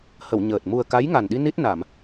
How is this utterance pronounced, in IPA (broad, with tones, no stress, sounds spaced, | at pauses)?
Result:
h ə˨˩˨ w ɲ əː˨˩ t̚ m u˨˩ ə̯ k a˧˥ j ŋ a˨˩ n ɗ i˧ n i˦˥ t̚ n a˨˩˨ m